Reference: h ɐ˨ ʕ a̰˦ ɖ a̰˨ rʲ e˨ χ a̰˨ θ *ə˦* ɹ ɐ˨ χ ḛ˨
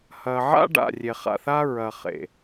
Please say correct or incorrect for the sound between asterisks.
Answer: incorrect